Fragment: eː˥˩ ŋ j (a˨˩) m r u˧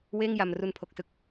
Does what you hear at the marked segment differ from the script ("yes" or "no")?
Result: no